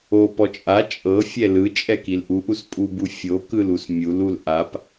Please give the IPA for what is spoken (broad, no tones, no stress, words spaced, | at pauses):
opɔ t͡ʃʼa t͡ʃʼɤfʲɛ lɯt͡ʃʼɛkil ʔuʔuspʼubu fʲokɯlus mʲulul ʔap